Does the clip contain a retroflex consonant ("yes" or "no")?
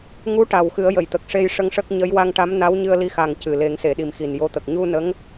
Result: yes